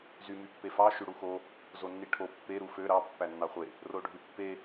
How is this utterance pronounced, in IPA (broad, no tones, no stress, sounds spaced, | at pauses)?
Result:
z y m y pː e f ɑ ʃ y ɽ u x o | z o nː i ʈʰ o pː e ɾ u f ø ɾ ɑ pː æ nː ɑ χʷ e | r o ɖʱ y pː e